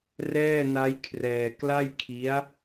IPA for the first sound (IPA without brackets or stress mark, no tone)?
r